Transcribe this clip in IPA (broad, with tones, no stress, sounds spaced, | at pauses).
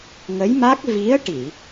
ŋ ə˧˥ j m a˦˥ k̚ v i˧˥ ə̯ ʈ i˨˩˨